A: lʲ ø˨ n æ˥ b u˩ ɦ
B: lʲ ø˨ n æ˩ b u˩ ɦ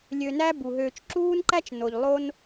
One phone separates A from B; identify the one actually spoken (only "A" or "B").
A